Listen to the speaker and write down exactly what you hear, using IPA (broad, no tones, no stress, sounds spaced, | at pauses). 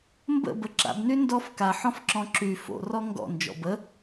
m b ə̰ b ə ǁ a̰ b n y n d ɔ f k a ħ ɔ̃ f ǁ ɔ̃ ǁ y f o̰ r ɔ ŋ ɡ ɔ̰ n d͡ʒ ɔ̰ b ə